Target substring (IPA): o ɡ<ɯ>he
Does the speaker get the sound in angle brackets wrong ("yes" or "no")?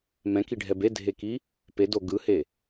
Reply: no